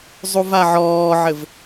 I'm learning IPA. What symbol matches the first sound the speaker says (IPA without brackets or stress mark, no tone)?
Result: zˤ